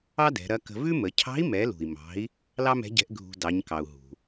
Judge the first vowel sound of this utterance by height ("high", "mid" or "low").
low